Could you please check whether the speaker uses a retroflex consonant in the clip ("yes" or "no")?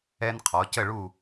yes